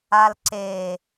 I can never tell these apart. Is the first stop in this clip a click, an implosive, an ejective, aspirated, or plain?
click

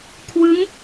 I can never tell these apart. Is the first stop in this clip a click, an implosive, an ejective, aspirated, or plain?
aspirated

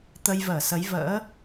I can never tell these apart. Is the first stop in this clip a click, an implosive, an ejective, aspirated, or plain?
plain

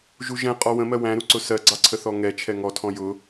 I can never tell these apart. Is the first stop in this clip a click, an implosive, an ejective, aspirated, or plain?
ejective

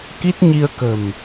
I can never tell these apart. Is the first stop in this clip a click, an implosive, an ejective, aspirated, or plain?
plain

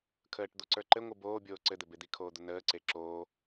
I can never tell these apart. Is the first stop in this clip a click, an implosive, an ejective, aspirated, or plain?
aspirated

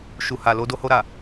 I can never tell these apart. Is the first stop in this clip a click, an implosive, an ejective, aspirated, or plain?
plain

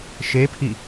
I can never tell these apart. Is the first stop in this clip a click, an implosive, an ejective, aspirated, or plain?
aspirated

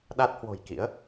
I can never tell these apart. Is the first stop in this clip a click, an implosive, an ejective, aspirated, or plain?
implosive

